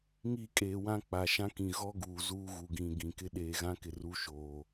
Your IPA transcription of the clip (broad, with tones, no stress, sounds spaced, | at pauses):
ŋ i˦˨ kʼ eː˨ w ã˦ k͡p a˨ ʃ ã˦ k ĩ˨ ɣ ɔ˦ ɡ uː˨ z uː˦ ɣ u˨ ɡ ĩ˨ ɡ ĩ˨ k ɪ˦ ɗ eː˨ ɣ ã˦ k ɪ˨ r u˦ ʃ oː˨